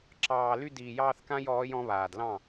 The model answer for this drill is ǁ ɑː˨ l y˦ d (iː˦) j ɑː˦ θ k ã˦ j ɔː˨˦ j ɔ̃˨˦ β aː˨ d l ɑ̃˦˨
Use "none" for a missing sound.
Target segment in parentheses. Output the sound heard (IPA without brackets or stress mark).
iː˨